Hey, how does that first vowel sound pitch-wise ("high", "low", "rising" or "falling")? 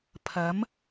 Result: rising